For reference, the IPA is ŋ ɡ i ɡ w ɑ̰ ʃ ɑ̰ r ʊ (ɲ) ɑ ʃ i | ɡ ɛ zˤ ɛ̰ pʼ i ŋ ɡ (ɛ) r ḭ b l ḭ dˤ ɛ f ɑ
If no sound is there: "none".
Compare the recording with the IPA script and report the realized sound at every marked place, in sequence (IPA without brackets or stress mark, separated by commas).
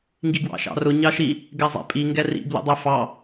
ɲ, ɛ